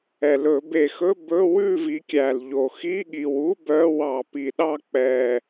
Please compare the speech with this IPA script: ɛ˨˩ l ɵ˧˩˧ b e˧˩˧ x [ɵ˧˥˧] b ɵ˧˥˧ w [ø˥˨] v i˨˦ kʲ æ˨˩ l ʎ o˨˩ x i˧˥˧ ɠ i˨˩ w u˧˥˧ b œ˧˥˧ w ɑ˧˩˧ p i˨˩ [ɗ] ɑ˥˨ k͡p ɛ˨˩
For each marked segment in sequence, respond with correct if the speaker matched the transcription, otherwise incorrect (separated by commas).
correct, incorrect, correct